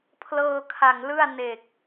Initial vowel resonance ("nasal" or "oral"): oral